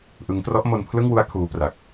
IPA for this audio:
ʔ ɯ˦˥ ŋ t r ɔ˦˥ ʔ m o˧ n pʰ l ɯ˥˩ ŋ w u˦˥ a̯ kʰ uː˦˥ p r a˨˩ k̚

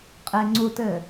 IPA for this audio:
qʼ e ŋ͡ǀ u t ɘ

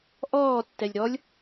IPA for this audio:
ʔ ɔː tː ɛ lʲ ɾ ɔ lʲ

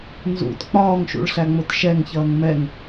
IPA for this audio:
n z ṵ t k͡p ɒː ŋ ʃ ṵ ɭ ɬ æ ŋ͡m ʊ t ʃ ɛ ŋ ç ʌː ŋ m ɛ ŋ

